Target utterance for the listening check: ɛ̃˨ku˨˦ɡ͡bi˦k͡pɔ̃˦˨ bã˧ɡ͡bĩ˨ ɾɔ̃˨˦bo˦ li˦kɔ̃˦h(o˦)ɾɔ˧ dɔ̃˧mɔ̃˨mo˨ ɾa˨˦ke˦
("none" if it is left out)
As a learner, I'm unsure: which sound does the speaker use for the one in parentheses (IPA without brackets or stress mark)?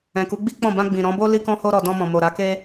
o˦